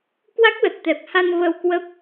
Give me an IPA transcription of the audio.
k w a˦˥ k̚ l ə˨˩ t̚ t̪ ɛ˨˩ p̚ h a˧ n v ə˧ w k w ə˦˥ p̚

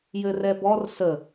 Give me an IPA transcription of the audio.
j ɘ r ɛ b ɔ r s ə

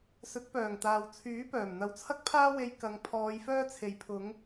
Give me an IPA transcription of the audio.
s ɵ˨˥ t̚ p œː˨˩ ŋ t̪ aː˨ w t͡sʰ yː˨˥ p œː˨˩ m n̪ ɐ˨˧ w t͡sʰ ɐ˥ k̚ pʰ aː˥ w e˧ j k ɐ˨˧ ŋ pʰ ɔː˨˧ j f œː˥ t͡sʰ e˨ j pʰ ʊ˨˧ ŋ

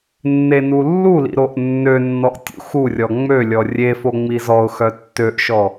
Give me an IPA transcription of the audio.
nː e n u lː u l ḭ ɾ o ʔ nː ø nː ɔ ʔ tʲ ṵ x u rʲ ɔ ŋ͡m ø lʲ ɔ rʲ e f o ŋ͡m i z ɔ ʊ̯ x œ tː ø ʔ ʃ ɔ

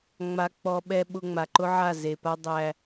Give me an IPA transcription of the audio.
ŋ͡m a˦ k͡p ɔ˦ ɓ ɛ˦ ɓ ʊ˦ ŋ͡m a˨ ǃ ʊ˦ ʕ a˦˨ z e˨ p a˦ dˤ æ˦

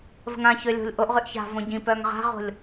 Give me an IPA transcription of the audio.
v ə̤ ŋ ã ç ø lʲ o̤ lʲ ʔ o ʔ ʁ y ʔ ç a̤ v õ ɟ ĩ p œ ŋ ʁ a̤ ʁ o̤ lʲ

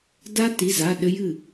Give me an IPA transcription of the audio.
d a˦˥ t i˩˧˩ z a˩˧˩ ɗ ɘ˦˥ j ɨ˥˩

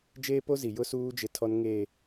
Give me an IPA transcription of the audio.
d͡ʒ eː˦ p o˦ z i˨ j ʊ˦ s uː˦ d͡ʒ ɪ˦ tʰ ɔ˦ n ŋ eː˨

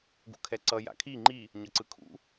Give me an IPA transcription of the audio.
ɡ ṵ kʰ ɛ ǀ ʌ j a̰ kʰ i ŋ͡ǃ i | ɲ ʌ ǀ ɯ kʰ ṵ

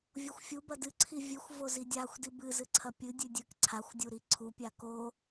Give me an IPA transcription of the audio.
vʲ o xʷ fʲ u b ɐ d ɨ ǀʰ i vʲ ɨ xʷ v o z i dʲ a xʷ d i b ɨ z ɨ ǀʰ ɐ pʲ ɨ dʲ ʉ dʲ ɨ k ǀʰ a xʷ dʲ u ɾ i ǀʰ u pʲ a k o

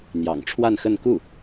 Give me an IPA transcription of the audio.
n̪ j ɑ̰˨˩ ŋ ʈ͡ʂʰ w a˥˧ n x ə˥˧ n k u˥˩

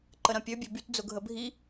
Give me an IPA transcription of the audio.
ǃ ə ɾ ɐ̃ pʲ ø bʲ ø b y t d͡z ʊ ɡʱ ə bʱ i

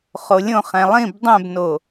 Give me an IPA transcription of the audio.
χ o lʲ õ χ ɛ̃ lˠ ĩ b dˤ ɛ̃ b n o

